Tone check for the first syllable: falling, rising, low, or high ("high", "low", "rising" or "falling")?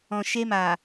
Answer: low